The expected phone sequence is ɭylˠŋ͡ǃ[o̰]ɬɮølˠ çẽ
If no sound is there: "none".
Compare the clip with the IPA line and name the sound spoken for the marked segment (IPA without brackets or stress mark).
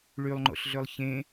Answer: o̰